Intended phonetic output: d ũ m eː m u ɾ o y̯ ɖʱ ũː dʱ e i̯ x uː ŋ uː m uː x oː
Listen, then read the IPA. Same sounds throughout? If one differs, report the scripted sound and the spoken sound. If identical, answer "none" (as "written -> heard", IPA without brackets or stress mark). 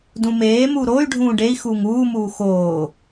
dʱ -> ɖ